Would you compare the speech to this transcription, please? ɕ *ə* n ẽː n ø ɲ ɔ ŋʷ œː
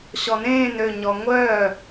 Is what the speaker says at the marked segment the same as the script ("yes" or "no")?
no